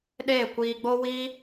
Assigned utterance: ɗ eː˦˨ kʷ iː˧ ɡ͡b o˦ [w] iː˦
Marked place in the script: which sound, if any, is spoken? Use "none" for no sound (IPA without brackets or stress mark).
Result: w